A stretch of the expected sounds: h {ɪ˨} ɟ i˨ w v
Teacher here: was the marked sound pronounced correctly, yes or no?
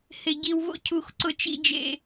yes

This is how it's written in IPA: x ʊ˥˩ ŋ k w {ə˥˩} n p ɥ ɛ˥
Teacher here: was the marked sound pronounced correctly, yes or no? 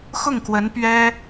no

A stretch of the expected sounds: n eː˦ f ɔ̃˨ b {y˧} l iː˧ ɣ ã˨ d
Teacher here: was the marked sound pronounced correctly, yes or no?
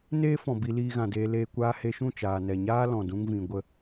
no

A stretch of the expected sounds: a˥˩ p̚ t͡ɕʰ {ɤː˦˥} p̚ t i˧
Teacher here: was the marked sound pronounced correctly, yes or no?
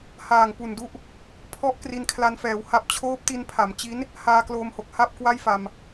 no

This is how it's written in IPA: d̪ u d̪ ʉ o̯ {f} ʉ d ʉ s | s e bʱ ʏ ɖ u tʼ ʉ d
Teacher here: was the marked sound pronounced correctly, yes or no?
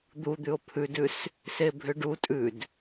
no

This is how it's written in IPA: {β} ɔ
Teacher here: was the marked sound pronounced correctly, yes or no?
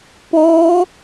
no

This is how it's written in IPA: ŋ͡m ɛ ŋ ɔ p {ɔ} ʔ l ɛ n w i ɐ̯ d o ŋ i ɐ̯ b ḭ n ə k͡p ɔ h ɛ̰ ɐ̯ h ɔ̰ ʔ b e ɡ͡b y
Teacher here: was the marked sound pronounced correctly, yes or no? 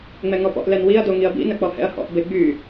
no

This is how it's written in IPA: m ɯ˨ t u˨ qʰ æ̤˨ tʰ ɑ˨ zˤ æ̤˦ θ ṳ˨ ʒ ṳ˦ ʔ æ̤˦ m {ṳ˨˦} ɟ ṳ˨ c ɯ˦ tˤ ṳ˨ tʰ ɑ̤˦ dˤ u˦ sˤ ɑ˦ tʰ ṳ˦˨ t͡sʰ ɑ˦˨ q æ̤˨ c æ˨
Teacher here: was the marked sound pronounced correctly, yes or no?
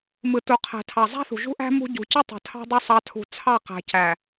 no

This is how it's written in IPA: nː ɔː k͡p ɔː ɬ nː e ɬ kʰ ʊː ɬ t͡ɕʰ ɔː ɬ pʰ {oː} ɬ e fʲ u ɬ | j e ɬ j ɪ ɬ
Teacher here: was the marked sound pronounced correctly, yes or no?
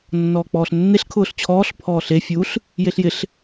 no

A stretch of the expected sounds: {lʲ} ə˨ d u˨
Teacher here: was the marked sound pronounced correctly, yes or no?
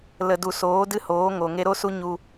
no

